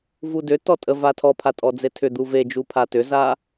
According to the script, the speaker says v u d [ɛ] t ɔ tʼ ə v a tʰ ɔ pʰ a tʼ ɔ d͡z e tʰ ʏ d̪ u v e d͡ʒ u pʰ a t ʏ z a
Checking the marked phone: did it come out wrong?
yes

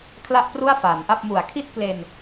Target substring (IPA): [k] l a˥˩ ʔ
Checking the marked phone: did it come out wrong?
yes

